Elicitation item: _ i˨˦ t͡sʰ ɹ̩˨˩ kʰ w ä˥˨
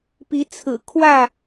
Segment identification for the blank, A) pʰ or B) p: B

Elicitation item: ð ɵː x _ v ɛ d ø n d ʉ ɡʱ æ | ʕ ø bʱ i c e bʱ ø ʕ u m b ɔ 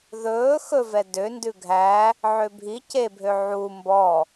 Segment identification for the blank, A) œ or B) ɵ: B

